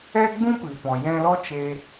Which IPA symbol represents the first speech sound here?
ɛ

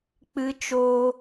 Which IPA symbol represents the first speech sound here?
k͡p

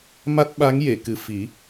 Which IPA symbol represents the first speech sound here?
m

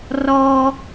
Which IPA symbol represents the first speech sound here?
r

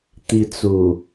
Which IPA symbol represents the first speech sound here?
t̪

